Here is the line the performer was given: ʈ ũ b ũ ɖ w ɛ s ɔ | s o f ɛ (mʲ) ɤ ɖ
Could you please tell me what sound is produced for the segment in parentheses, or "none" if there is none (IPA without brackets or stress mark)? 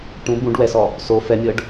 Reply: mʲ